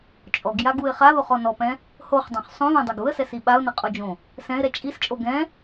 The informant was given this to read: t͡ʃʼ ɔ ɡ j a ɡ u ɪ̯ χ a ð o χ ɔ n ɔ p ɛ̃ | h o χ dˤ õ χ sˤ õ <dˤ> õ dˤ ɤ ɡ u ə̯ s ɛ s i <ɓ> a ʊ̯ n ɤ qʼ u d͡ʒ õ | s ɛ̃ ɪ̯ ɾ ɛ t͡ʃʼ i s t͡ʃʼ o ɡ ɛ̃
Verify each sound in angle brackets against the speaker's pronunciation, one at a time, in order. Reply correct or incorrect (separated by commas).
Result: incorrect, correct